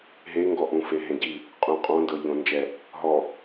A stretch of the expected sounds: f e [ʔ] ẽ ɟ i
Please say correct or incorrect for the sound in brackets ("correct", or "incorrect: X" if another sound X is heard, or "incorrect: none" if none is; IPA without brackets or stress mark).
incorrect: ɦ